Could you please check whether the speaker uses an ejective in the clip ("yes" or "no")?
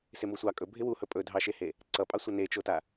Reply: yes